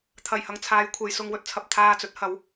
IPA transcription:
t̪ʰ ɐ˨˩ j h ɐ˨ ŋ t͡sʰ aː˨˧ j kʷʰ e˨ j s ʊ˧ ŋ w ɵ˧ t̚ t͡sʰ ɐ˧ p̚ t̪ʰ aː˧ t͡s ɵ˨˥ t̚ h ɐ˨˥ w

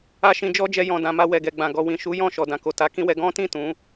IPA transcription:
a˦ ʃ ĩ˧ d͡ʒ ɔ˦ d͡ʒ ɛ˧ j ɔ̃˨ d ã˨ m a˧ w ɛ˨ ɡ ɛ˨ ɡ͡b ã˨ ɡ ɔ˨ w ĩ˨ ʃ u˨˦ j ɔ̃˦˨ ʃ ɔ˨ d ã˨ k o˨ t a˨˦ k ĩ˦ w ɛ˧ ɡ ɔ̃˦ t ĩ˦˨ t ũ˨˦

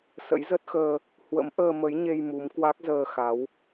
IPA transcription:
s ə̰˧˥ j z ə˦˥ t̚ x əː˧ | h w ə̰˧˥ m ʔ əː˧ m ə˨˦ j ɲ e˧ j m u˨˦ m k w a˦˥ k̚ z əː˧ x a˨˦ w

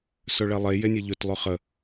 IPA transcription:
s ɵ ɭ ɛ lˠ e j e nʲ e ʎ ɵ t lˠ ɵ χ ə

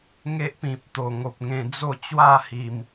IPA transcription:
ŋ e˦ ʔ p ĩ˨ p̚ t̪ o˨˩ ŋ o˨ p̚ ŋ ẽ˧ d͡z o˥˧ t͡ɕ w a˥˧ h i˨˩ m

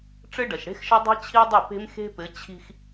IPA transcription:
ʈ͡ʂ ɘ˦ ɖ ɐ˨ ʃ ɽ e̤˦ x ʃ ɐ˦ dˤ i̤˦ t͡ɕʰ i˦ dˤ ɘ˦˨ p e̤˦ m x e̤˦ p ɘ˨˦ t͡ɕʰ i̤˦ x

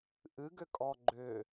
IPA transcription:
ʔ ɨ ɡ ʏ kʼ ɔ ɡ͡ǃ ʏ

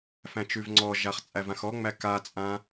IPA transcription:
f æ̃ t͡ʃ ʉ v ŋ͡ǀ ɔ ʒ a χ t͡sʼ æ v ã x ɔ ŋ͡m æ k a t͡sʼ ã

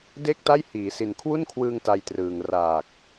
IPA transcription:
d e˥˩ k̚ t a˥˩ j h iː˩˦ s i˨˩ n kʰ w u˥˩ n kʰ w ɯː˧ ŋ t a˧ j t r ɯː˨˩ ŋ r aː˨˩ k̚

